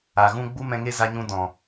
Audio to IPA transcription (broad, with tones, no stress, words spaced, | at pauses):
a˨ ɣũ˦ ɡ͡bu˦mɛ̃˧ŋe˦ za˧ɲũ˧ dɔ̃˨